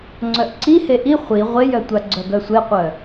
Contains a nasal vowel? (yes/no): no